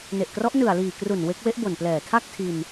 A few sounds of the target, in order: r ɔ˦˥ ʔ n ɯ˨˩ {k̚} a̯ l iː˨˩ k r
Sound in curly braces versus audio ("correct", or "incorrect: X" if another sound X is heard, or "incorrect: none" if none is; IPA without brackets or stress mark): incorrect: none